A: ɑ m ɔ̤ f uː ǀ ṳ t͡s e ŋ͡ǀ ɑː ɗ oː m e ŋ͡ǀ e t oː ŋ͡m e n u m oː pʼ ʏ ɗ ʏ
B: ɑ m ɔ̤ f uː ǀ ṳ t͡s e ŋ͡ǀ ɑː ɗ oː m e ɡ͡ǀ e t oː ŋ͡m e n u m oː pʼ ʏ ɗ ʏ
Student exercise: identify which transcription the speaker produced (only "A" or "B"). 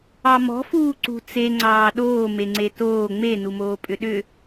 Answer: A